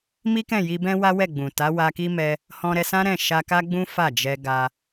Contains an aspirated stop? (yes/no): no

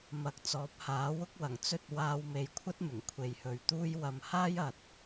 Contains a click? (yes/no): no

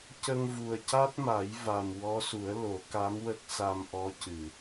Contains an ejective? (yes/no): no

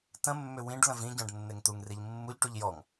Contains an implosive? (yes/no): no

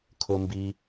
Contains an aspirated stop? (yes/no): yes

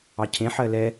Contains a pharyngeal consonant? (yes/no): yes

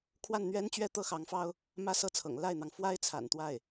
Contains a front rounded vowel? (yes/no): no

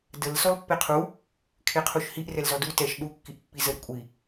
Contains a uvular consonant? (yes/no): yes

